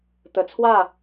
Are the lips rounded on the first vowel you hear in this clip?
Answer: no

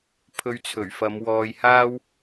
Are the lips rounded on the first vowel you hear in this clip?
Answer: yes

